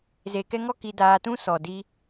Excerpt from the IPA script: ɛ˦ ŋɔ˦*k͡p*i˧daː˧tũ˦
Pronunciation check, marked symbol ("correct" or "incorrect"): incorrect